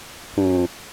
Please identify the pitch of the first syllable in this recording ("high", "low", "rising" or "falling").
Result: low